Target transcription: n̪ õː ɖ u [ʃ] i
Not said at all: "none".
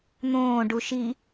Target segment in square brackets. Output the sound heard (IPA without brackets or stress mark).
ʃ